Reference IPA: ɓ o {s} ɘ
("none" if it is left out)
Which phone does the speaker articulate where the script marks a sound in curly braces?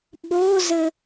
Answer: z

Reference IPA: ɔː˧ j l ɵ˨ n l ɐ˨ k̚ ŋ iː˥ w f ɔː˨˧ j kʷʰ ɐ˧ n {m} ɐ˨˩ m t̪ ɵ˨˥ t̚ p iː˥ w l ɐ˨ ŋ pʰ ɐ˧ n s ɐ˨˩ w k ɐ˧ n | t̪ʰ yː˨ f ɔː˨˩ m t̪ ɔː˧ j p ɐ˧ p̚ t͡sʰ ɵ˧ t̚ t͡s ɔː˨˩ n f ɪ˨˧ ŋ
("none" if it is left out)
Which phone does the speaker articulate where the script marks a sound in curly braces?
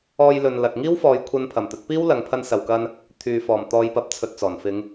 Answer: pʰ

